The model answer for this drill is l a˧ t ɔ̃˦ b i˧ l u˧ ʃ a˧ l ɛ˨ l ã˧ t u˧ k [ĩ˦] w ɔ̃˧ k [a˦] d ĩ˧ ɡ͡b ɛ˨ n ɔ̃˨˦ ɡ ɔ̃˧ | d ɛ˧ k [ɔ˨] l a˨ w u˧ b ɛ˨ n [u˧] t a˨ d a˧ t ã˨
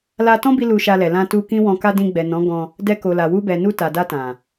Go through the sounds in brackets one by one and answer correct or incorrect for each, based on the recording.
correct, correct, incorrect, correct

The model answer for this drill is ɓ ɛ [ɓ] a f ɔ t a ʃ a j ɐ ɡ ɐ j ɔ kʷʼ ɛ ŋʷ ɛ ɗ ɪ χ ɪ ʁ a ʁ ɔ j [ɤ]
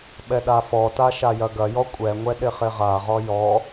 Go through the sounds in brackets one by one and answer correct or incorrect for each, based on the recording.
incorrect, incorrect

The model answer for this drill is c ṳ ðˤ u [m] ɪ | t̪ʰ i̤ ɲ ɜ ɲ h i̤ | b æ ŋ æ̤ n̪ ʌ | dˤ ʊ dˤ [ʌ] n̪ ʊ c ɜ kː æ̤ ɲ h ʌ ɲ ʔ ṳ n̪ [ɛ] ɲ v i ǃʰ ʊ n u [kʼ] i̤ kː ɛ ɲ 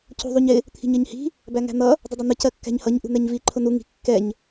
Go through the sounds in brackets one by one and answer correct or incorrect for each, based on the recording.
incorrect, correct, correct, incorrect

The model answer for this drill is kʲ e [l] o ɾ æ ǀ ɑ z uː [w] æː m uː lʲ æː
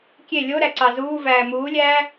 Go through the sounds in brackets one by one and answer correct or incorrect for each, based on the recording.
incorrect, incorrect

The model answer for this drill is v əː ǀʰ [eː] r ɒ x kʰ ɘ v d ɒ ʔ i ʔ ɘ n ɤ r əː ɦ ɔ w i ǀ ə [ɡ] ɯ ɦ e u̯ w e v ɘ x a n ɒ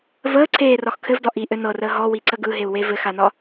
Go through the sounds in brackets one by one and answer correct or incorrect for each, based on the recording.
correct, correct

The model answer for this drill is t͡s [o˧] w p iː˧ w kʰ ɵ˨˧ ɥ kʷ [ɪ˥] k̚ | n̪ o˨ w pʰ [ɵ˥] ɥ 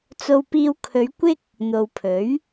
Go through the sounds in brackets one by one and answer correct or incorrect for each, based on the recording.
correct, correct, incorrect

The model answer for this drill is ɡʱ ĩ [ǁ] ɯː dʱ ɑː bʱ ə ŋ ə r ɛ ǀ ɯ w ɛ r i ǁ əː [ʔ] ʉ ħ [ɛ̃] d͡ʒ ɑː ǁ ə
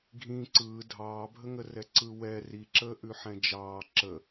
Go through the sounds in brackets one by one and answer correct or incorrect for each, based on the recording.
incorrect, correct, correct

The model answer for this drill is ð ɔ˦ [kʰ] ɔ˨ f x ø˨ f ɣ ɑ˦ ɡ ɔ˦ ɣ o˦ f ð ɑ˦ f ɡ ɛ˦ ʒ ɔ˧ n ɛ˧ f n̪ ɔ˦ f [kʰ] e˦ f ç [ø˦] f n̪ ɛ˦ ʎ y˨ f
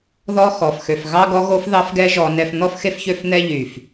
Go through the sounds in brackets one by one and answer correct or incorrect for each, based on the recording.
incorrect, incorrect, correct

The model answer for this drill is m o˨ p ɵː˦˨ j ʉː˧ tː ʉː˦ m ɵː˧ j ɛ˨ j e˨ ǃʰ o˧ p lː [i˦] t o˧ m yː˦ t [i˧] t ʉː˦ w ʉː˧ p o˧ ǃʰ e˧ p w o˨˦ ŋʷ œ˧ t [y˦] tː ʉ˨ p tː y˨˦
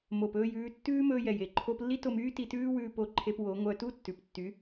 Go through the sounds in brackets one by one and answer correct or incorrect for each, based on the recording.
correct, correct, incorrect

